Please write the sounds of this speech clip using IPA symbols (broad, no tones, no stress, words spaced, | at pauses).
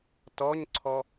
tɔɲǀʰɔ